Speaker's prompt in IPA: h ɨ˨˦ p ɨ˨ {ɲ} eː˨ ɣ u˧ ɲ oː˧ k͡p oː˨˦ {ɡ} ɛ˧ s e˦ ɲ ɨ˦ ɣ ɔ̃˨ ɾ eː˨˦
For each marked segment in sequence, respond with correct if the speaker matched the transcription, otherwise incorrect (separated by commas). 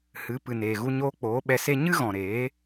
incorrect, incorrect